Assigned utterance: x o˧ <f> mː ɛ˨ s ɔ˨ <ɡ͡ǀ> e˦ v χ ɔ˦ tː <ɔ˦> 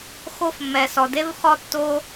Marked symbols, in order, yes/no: yes, no, no

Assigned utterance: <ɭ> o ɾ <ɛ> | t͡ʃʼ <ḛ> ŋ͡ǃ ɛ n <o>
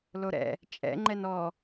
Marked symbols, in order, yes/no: no, no, no, no

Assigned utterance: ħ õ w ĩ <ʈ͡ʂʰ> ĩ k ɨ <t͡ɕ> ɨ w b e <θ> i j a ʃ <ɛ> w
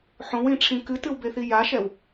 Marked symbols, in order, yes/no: yes, no, yes, yes

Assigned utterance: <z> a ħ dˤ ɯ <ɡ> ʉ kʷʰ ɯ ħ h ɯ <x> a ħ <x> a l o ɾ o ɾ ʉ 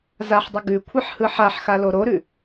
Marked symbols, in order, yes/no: yes, yes, no, yes

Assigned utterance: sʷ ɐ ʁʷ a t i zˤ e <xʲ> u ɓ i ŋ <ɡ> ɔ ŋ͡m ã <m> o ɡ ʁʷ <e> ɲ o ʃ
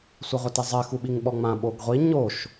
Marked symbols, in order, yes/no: no, no, no, no

